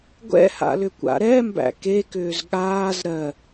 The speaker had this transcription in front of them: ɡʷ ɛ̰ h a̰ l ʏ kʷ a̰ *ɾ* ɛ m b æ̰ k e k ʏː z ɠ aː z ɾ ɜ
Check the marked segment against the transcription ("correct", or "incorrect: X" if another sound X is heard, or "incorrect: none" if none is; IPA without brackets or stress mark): correct